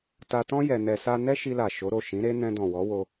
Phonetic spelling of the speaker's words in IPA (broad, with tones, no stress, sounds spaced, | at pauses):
t a˧ t ɔ̃˦ j ɛ˧ n ɛ˧ s a˦ n ɛ˦ ʃ i˧ l a˨ ʃ o˨˦ ɾ o˦˨ ʃ ĩ˨˦ ɾ e˦ n ɛ̃˧ d ɔ̃˨ w ɔ˨˦ w o˧